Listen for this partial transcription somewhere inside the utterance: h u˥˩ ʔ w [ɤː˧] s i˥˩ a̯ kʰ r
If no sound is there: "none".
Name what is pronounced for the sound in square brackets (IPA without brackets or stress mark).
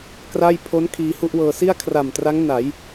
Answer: ɤː˧